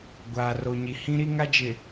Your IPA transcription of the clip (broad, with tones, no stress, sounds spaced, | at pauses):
ɡʷ aː˨ r o˨ ɲ i˨ h ĩ˦ ɾ i˦ ŋ a˦ d͡ʒ ɪ˨